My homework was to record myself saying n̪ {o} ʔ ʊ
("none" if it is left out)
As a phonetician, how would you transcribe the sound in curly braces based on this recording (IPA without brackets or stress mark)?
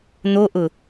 o